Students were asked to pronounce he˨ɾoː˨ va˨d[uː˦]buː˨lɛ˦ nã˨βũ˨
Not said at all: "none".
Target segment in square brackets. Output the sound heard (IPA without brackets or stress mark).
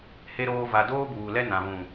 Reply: oː˦